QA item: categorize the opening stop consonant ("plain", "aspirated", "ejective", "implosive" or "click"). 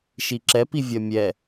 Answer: click